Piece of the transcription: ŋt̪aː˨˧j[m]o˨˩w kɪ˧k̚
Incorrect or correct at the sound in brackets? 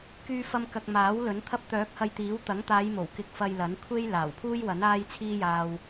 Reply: correct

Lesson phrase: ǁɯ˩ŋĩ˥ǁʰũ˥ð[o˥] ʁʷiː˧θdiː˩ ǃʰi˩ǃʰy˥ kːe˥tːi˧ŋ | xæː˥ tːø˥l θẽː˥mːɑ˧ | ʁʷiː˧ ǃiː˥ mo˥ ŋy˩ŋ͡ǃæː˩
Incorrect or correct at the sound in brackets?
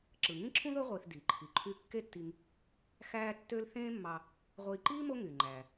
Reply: correct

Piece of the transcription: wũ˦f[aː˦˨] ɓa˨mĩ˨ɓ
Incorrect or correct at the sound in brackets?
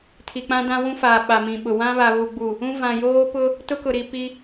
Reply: incorrect: aː˨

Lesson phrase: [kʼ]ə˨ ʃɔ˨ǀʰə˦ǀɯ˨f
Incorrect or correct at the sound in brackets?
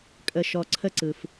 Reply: correct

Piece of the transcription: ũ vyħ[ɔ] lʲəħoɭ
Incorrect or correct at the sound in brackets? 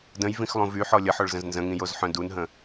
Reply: correct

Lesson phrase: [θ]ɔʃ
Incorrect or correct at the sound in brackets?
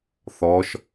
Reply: correct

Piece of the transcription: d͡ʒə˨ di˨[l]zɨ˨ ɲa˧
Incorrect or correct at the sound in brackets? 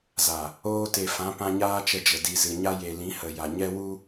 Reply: incorrect: none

